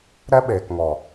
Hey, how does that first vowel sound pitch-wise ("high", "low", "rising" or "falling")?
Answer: high